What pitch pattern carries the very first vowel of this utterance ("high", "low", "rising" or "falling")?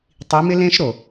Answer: rising